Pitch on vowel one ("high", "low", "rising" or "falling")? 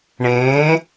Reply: rising